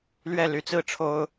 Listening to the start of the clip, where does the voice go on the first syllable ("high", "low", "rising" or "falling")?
falling